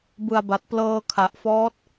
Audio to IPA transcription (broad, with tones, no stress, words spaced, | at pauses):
bɯ˨˩a̯ba˨˩t̚ plɤː˧kʰa˨˩ʔfɔː˦˥t̚